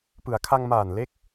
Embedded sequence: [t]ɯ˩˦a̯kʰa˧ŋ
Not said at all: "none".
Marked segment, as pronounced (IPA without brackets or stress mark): p